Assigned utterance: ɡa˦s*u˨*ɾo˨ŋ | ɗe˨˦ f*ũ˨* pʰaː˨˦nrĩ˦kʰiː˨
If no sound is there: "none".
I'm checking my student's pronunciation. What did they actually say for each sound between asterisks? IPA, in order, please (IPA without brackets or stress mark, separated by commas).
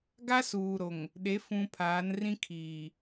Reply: uː˨, ũ˨